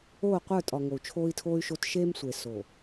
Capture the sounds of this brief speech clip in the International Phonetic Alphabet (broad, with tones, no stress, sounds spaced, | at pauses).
oː˦˨ qʷ ə˞˦˨ tʼ ɒ˨ ŋ o˨ u̯ t͡ʃʰ oː˦ i̯ tʰ oː˦ y̯ ʃ o˦ t ʃ eː˦ m sʷ e˨ s o˨